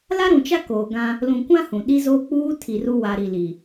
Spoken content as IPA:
l a˦ ɾ ũ˨ t͡ʃ a˦ k oː˨ ɡ ã˦ | l ũ˨ kʷ ã˦ h ũ˨ ɗ i˦ z oː˦ k͡p uː˦ tʰ i˨ r u˦ w a˨ ɾ i˨ l i˨

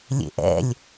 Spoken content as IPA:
lʲ ḛ ʔ ɛ̰ lʲ

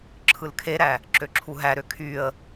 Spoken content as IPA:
ǁʰ ɯ l kʰ e ɾ æ | ǁ ø ǁʰ u ɦ æ ɾ ø kʰ y ə̯

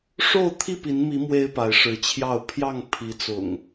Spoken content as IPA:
ʂ o˥˨ ʊ̯ t̪ʰ i˥˨ p i˨˦ n m i˨˦ m w e˦ ɪ̯ p a˨˦ ɪ̯ ʂ ɻ̩˨˦ t͡ɕʰ j ɑ˥˨ ʊ̯ pʰ j ɑ˥˨ ŋ pʰ i˨˦ t͡s ʊ̰˨˩ ŋ

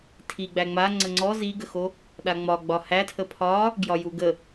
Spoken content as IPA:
tʰ i ɡ͡b æ ŋ͡m a ŋ͡ǀ ə ŋ͡ǀ ɔ z i ɡ ə x o | ɗ a ŋ͡m ɒ ɡ͡b ɒ h æ tʰ ə pʰ ɒ | ɡ j ɒ j u ɡ ə

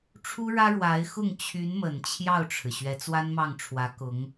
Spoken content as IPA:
ʈ͡ʂʰ u˥ ɻ ä˥ ɻ w a˧˥ ɪ̯ x ʊ˥˩ ŋ t͡ɕʰ y˧˥ n m ə˨˩ n t͡ɕʰ j ɑ˥˩ ʊ̯ ʈ͡ʂʰ ɻ̩˩ ɕ ɥ ɛ˧˥ t͡s w a˥ n m ɑ˥˩ ŋ ʈ͡ʂʰ w ä˧˥ k ʊ˧˥ ŋ

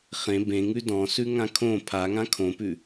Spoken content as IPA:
χ ẽ b ẽ ŋ ʉ d ɔ̃ s ʉ ŋ ã kʰ õ pʰ a ŋ ã kʰ õ p ʉ

